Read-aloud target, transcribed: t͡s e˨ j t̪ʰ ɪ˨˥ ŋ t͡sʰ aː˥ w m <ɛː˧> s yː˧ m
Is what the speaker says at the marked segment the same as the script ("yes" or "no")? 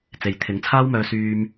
no